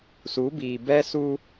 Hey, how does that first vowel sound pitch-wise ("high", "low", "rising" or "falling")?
rising